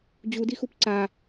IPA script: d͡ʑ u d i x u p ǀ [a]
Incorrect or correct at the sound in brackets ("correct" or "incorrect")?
correct